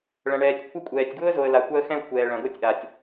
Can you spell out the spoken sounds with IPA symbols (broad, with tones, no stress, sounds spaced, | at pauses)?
ɭ ɐ̃˨ ɳ ɛː˨ tʲ kʷʰ ɐ˦ kʷʼ ɛː˨ tʲ ɡ w ʊ˦ ə̯ z o˨ ə̯ l a˨ kʷ a˦ ə̯ x ɛ̃˦ ə̯ kʷʰ ɛː˨ ɭ ɐ̃˨ ɡ o˦ tʲ ʔ a˨ tʲ